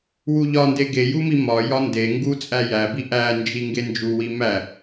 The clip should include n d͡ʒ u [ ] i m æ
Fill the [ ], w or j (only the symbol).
w